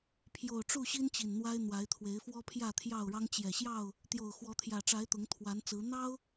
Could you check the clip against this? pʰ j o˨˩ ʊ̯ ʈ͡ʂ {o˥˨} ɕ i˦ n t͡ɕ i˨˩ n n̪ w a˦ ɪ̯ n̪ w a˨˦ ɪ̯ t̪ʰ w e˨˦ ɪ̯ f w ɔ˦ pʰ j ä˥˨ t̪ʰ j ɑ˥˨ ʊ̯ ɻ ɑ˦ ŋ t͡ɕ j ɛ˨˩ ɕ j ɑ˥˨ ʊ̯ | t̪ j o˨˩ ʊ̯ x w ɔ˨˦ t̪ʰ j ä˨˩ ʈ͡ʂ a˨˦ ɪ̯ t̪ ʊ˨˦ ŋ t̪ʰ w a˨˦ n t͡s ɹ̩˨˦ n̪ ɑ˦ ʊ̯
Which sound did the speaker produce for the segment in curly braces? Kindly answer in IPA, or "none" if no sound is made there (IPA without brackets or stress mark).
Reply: u˥˨